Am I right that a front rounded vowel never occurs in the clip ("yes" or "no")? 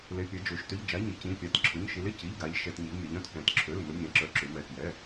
no